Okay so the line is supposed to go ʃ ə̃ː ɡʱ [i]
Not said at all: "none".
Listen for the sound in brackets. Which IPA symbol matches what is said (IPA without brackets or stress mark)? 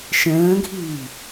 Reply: iː